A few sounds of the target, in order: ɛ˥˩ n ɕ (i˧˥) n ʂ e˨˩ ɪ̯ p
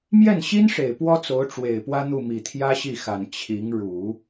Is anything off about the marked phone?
yes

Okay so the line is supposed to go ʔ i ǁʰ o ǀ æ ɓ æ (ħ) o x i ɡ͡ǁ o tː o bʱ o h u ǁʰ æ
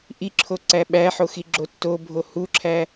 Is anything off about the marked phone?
no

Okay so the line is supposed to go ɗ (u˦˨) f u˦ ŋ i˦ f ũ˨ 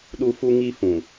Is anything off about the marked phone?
yes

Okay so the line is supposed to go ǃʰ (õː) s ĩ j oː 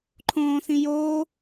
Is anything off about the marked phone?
no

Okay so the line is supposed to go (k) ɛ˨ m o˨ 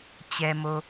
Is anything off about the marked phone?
yes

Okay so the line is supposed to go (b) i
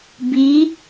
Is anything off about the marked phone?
no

